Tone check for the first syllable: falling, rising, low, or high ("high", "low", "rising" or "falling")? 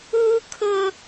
high